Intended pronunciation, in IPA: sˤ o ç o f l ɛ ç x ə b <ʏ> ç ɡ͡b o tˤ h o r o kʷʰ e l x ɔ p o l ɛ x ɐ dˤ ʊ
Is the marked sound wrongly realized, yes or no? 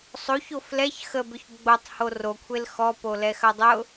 no